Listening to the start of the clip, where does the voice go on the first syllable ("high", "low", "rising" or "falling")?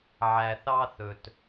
low